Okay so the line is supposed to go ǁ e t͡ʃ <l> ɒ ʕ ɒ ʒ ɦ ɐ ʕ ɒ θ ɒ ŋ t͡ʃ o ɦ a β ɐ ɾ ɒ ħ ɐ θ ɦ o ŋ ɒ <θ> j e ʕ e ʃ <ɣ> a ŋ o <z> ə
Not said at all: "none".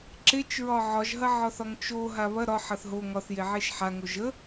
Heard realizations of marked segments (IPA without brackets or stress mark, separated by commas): ɹ, θ, ħ, ʒ